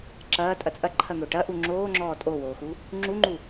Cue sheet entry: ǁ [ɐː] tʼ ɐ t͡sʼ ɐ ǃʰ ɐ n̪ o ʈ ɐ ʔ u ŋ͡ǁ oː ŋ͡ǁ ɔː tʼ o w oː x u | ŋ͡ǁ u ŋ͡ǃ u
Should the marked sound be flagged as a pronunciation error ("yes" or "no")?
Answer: no